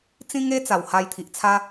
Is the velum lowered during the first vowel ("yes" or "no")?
yes